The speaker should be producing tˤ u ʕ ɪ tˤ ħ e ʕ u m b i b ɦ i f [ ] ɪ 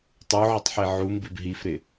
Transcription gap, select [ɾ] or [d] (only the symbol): ɾ